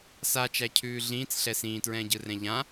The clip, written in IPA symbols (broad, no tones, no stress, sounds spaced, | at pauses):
s a t͡ʃ æ cʰ ʉː ɮ ĩː t͡s ɬ ɛ s ĩː t ɹ ɛ̃ː ɟ ɯ r ɛ̃ ʎ ã